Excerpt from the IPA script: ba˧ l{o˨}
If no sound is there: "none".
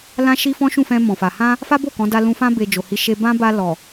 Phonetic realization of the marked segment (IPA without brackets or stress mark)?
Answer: ɔ˨